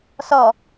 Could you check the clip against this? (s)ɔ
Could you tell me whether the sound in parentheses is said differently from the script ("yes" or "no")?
no